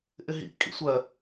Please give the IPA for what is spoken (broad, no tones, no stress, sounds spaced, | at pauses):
ʔ ɪ ɦ ḭ kʼ ḭ sʷ ɜ